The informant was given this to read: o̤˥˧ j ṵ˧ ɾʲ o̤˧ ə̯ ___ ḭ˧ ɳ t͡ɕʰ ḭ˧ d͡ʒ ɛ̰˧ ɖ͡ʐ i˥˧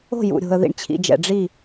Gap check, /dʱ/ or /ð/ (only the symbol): ð